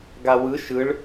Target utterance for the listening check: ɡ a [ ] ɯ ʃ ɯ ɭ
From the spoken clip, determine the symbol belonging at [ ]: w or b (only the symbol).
w